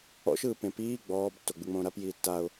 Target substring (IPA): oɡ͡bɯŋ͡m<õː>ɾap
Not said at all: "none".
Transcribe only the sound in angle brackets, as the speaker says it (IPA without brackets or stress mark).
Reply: õː